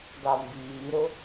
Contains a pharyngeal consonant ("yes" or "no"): no